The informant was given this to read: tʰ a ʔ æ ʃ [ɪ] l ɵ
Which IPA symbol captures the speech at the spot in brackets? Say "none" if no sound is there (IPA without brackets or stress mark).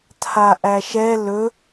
ɛ